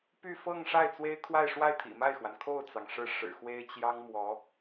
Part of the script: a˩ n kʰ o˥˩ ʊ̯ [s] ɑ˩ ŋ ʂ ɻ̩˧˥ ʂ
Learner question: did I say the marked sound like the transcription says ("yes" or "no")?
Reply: no